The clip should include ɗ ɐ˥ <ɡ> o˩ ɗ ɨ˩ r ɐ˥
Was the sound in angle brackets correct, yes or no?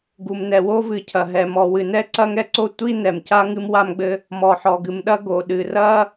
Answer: yes